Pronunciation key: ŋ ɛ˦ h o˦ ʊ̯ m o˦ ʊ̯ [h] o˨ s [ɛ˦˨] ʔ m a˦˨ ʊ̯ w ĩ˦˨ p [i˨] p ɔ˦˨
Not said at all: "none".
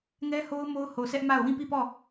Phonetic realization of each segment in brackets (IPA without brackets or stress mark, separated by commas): h, ɛ˦, i˦˨